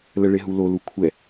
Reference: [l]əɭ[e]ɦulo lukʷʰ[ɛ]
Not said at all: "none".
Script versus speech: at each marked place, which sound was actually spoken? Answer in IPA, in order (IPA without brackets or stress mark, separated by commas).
l, e, ɛ